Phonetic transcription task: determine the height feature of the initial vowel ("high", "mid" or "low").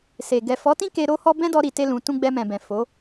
mid